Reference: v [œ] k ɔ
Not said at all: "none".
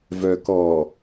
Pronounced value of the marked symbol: œ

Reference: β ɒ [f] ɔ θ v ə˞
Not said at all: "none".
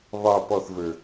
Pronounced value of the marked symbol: p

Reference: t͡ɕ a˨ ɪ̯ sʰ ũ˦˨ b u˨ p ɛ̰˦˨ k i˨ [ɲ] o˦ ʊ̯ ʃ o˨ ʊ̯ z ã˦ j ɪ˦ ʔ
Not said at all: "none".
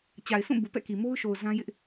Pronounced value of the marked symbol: m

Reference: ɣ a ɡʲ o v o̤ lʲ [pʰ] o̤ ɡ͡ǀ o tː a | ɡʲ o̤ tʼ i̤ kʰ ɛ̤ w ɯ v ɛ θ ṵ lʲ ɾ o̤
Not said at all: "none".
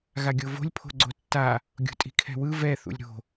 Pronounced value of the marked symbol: pʰ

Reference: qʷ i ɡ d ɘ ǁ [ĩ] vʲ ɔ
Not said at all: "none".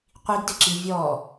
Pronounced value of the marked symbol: i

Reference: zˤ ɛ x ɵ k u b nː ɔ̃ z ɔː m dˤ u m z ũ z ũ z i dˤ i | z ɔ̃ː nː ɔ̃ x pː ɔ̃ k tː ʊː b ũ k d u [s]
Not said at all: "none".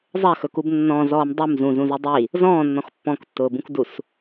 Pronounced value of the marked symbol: s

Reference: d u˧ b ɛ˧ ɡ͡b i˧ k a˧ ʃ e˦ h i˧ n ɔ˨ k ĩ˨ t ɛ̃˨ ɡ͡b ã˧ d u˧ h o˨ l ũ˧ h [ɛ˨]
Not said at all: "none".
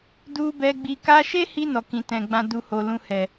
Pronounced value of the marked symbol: ɛ˨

